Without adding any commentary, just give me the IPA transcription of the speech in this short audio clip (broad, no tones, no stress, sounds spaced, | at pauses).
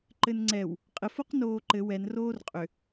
ǃ ɘ n ŋ͡ǀ ɛ w | qʼ ɘ f o q n oː ǃ ɘ w ɛ n r oː r qʼ ʏ